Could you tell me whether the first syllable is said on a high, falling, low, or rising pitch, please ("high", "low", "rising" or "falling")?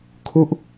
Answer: falling